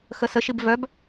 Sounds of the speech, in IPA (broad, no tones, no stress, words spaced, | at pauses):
xəsəʃib vœb